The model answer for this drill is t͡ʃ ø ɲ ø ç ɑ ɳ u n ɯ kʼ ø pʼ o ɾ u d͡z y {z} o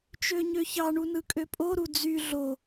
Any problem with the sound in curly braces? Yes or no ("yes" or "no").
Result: yes